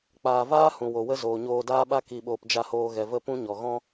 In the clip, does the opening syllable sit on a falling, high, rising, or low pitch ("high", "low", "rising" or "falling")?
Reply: low